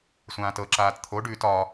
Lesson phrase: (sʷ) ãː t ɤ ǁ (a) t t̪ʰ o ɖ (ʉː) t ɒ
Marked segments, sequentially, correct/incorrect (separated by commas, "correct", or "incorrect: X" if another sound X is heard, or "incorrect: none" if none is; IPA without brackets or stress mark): correct, incorrect: aː, correct